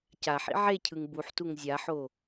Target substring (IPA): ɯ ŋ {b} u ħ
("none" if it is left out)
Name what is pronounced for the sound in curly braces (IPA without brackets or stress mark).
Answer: b